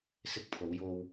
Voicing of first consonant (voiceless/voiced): voiceless